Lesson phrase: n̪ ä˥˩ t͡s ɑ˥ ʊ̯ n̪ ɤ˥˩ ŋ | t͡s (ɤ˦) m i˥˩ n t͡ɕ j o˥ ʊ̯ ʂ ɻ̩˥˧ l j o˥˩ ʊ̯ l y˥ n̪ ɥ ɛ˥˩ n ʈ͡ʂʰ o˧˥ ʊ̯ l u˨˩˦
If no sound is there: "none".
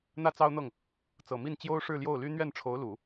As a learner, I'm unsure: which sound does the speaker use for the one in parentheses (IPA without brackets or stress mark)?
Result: ɤ˨˩